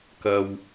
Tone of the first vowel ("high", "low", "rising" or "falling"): low